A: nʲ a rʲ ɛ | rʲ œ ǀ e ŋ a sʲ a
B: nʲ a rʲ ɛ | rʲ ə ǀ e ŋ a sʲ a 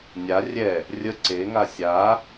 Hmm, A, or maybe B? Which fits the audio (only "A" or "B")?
B